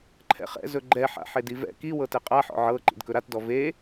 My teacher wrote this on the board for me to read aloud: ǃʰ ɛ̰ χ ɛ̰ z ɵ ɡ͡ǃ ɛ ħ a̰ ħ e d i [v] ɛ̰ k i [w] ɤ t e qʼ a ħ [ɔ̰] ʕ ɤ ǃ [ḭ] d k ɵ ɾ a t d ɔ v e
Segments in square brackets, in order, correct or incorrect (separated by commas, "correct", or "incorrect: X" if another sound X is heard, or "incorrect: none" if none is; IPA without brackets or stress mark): correct, correct, correct, correct